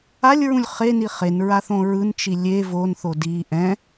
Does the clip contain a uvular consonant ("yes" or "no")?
yes